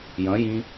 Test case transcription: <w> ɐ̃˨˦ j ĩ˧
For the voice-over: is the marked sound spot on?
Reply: no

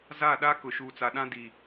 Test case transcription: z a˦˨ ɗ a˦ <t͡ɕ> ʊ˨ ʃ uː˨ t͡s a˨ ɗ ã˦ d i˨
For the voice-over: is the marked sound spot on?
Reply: no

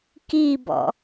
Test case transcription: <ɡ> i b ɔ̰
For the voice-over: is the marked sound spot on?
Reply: no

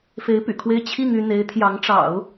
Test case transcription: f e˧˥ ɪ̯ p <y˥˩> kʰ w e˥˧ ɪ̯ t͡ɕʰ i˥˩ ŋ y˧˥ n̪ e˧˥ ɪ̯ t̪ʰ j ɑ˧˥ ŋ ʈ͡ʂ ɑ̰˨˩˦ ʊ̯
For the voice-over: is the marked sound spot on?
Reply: no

